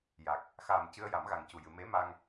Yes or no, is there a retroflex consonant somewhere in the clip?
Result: no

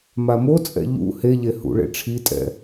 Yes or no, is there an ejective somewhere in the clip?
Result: yes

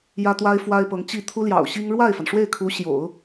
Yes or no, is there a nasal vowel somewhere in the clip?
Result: no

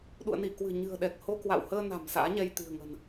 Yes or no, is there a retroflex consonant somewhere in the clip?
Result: no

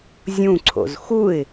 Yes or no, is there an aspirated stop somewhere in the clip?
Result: yes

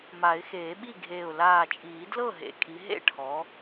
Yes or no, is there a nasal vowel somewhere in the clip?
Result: no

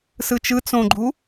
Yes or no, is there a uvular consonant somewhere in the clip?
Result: no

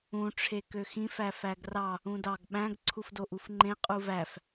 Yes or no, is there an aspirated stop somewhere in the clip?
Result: yes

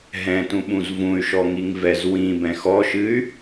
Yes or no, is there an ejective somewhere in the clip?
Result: no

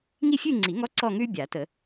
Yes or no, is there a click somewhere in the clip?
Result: yes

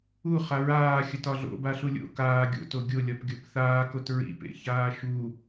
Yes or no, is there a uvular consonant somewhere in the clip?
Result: yes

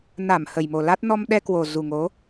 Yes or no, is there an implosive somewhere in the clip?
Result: yes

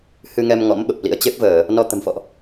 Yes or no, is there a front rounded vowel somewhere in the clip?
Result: no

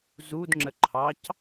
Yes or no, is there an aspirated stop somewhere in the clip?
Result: yes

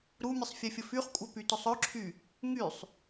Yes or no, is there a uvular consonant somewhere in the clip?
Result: yes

